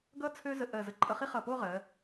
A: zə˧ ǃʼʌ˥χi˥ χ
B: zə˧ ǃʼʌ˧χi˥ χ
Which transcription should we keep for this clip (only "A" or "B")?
B